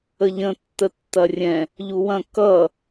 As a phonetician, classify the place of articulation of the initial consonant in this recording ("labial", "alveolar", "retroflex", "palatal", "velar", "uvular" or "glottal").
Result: palatal